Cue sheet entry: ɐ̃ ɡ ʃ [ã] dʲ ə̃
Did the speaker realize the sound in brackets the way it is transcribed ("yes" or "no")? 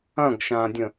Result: yes